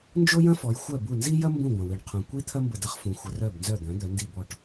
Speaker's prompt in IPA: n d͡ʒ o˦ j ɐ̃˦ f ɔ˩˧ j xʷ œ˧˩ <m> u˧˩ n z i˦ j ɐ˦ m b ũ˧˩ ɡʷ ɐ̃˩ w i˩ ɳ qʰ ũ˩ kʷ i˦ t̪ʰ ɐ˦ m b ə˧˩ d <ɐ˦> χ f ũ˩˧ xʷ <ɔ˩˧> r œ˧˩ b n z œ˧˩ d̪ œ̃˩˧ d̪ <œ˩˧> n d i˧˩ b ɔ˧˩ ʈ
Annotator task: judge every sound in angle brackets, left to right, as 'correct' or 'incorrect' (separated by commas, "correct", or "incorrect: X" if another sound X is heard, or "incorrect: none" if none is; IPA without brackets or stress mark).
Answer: incorrect: b, correct, incorrect: ə˩˧, correct